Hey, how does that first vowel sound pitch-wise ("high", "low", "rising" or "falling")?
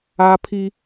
high